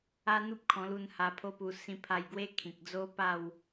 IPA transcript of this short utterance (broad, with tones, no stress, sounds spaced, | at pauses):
a˦ n̪ u˦ p̚ kʰ ɔ̃˧ l u˧ n h a˧ pʰ o˦ p u˧ s ĩ˧ pʰ a˧ j ɡ w e˦ kʰ ĩ˨ k̚ d͡z o˦ p a˥˧ w